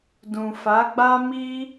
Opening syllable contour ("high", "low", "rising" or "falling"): low